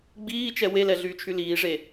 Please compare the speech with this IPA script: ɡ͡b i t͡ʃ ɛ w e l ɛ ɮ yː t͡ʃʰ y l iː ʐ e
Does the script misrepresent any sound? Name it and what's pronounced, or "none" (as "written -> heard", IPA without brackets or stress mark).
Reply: i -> iː